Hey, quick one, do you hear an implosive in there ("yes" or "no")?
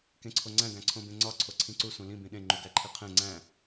yes